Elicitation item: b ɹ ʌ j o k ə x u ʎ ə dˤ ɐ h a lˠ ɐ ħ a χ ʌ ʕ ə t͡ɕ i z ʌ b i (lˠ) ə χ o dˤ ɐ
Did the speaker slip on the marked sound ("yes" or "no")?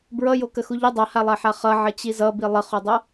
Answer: no